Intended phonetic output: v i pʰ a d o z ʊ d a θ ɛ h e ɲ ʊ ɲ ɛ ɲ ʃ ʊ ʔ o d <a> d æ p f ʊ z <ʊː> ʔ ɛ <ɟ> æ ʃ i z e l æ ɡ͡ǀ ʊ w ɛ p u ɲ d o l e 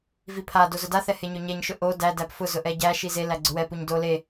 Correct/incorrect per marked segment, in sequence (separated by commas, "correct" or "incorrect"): incorrect, incorrect, correct